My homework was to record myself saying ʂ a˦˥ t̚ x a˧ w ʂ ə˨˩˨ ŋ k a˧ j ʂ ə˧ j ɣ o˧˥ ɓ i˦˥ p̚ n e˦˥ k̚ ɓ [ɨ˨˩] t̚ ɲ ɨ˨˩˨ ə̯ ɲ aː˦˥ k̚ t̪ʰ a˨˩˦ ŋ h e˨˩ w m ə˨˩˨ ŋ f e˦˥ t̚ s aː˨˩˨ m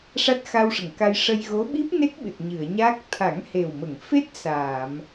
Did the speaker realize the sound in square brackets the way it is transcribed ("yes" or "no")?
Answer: yes